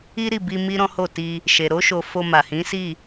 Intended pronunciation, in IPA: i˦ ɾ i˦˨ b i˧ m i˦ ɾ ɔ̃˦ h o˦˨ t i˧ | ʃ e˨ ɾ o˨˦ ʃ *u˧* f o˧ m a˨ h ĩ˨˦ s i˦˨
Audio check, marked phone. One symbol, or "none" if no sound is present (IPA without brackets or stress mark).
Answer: o˧